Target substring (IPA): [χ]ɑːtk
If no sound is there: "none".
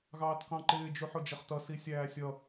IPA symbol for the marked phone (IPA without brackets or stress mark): ɣ